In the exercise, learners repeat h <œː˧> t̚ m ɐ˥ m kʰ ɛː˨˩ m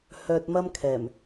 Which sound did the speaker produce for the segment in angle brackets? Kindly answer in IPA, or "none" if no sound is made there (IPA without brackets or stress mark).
œː˧